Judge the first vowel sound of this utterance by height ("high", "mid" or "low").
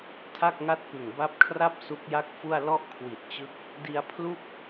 low